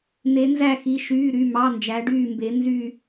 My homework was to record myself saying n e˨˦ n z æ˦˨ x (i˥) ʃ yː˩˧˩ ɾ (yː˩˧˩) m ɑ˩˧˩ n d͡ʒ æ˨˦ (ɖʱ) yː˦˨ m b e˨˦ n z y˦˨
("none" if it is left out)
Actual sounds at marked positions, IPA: i˩˧˩, y˩˧˩, ɖ

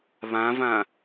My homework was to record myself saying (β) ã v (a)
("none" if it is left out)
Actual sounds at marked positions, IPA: β, ã

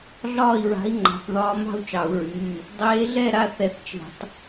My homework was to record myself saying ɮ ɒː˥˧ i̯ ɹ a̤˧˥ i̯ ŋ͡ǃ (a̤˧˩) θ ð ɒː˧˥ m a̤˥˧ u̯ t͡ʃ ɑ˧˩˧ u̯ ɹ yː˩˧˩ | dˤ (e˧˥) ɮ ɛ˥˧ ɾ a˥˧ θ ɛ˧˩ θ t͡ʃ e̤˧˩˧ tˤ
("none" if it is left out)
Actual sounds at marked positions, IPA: a̤˧˩, eː˧˥

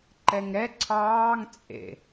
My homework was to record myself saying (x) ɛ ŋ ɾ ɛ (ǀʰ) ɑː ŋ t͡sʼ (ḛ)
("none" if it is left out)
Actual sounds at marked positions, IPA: ǃ, ǀʰ, ḛ

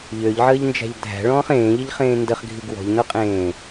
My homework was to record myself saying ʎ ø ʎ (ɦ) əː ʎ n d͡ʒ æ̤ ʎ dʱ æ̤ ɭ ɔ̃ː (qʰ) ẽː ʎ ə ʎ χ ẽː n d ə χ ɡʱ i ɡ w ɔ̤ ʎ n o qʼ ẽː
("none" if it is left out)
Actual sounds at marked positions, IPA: ʕ, χ

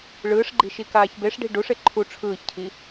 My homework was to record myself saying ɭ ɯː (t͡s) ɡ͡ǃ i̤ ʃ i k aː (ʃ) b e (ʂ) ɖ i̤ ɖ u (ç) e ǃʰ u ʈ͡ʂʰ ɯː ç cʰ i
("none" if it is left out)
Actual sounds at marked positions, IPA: ʂ, ç, ʂ, ʂ

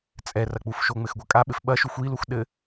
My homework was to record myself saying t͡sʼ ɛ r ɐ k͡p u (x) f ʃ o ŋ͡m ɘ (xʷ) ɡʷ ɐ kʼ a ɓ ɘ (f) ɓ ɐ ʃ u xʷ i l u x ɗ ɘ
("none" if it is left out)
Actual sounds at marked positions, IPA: none, x, f

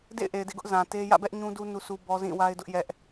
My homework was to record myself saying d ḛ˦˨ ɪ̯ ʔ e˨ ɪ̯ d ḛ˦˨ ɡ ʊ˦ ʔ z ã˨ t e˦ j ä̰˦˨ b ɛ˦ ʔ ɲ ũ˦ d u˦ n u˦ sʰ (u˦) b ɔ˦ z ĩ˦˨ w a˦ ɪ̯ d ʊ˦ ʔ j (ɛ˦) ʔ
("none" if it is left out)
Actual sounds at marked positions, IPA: u˦, ɛ˦

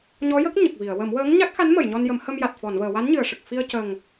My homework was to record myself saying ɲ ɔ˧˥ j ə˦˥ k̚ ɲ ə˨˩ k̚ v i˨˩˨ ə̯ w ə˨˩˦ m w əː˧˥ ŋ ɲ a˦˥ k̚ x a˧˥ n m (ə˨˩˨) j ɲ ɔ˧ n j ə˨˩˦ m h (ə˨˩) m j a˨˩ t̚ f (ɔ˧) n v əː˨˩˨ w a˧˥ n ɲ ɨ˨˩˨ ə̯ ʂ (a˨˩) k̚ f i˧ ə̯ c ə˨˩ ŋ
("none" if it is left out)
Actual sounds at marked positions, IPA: ə˨˩˨, ə˧, ɔ˨˩˨, ə˨˩

